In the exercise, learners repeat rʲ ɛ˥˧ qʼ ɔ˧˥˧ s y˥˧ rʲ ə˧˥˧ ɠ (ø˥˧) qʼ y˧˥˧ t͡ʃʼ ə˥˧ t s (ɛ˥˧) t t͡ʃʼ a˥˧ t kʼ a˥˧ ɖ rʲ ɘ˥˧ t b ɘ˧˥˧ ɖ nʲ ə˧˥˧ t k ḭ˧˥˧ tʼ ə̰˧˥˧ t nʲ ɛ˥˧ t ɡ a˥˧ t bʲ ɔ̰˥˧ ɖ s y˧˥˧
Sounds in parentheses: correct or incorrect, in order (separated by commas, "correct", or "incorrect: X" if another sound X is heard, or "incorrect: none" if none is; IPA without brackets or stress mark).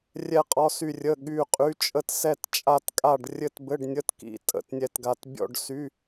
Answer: incorrect: y˥˧, correct